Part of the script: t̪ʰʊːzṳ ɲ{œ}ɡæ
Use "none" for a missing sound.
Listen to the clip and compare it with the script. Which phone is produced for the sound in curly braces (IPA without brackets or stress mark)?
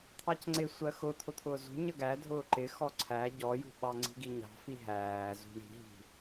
ə